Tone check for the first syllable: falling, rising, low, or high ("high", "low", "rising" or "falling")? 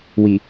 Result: low